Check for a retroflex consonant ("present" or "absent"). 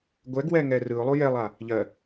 absent